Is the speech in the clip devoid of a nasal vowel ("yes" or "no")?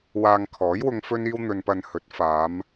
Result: yes